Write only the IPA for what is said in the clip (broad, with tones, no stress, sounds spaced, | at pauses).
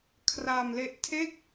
kʰ r a˧ m l e˦˥ ʔ tʰ e˥˩ k̚